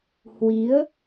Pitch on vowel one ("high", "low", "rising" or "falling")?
rising